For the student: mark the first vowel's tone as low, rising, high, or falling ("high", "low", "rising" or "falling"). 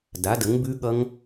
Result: rising